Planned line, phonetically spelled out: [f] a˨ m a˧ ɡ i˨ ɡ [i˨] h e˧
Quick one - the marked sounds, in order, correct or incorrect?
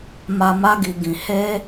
incorrect: m, incorrect: ĩ˨

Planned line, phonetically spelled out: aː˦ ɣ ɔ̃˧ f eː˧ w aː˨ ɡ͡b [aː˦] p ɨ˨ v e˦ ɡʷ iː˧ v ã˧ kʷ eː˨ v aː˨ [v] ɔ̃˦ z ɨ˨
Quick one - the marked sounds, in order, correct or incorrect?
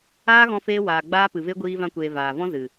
correct, correct

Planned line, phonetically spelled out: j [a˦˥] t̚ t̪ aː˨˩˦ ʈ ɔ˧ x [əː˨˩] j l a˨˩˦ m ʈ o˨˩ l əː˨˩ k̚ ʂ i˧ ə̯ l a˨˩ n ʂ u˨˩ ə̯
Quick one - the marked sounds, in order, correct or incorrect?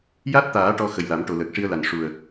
correct, incorrect: ə˨˩

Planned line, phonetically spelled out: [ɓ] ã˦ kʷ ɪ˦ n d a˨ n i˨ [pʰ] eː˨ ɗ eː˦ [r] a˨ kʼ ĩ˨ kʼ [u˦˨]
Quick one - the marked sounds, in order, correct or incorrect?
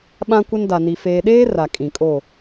correct, incorrect: f, correct, incorrect: o˦˨

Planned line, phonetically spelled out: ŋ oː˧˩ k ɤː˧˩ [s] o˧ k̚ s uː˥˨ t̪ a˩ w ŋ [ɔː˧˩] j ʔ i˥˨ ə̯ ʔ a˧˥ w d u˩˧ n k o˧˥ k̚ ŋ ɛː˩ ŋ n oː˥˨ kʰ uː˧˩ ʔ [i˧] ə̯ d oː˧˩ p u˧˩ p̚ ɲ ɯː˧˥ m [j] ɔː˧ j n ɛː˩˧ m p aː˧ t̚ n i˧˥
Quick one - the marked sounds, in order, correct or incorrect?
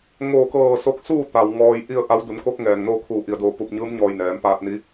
correct, incorrect: ɔː˧, incorrect: i˩, incorrect: ɲ

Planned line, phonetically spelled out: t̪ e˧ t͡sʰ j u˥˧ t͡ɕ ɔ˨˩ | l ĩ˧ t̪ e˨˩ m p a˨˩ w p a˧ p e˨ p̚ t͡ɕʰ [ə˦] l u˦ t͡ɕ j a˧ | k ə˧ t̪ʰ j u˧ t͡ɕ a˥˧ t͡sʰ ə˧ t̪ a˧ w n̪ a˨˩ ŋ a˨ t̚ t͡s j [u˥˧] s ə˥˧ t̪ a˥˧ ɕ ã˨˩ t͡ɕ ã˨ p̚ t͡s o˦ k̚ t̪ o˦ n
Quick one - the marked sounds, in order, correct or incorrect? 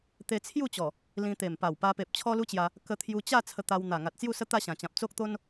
incorrect: ɔ˦, correct

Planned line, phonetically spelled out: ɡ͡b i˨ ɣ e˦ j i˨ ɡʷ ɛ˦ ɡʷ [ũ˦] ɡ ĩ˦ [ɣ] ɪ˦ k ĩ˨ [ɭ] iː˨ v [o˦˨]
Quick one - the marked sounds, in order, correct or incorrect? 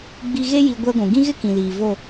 incorrect: ũ˨, correct, incorrect: l, correct

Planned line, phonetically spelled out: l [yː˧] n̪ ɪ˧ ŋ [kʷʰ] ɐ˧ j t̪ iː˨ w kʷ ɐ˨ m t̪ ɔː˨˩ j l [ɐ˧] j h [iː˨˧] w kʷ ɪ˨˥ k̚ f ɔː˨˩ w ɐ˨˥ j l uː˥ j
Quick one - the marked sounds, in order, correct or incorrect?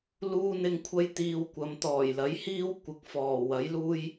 incorrect: uː˧, correct, incorrect: ɐ˨˥, incorrect: iː˥

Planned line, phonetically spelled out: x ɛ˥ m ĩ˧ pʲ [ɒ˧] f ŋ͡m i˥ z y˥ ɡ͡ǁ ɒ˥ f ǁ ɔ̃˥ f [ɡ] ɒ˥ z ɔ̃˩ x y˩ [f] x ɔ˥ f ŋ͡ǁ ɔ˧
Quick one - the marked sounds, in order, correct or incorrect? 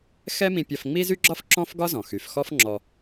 correct, correct, correct

